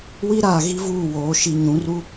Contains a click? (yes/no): no